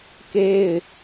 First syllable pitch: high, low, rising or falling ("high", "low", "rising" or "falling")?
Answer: high